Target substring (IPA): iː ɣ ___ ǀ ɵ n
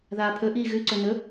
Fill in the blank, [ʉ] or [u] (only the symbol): ʉ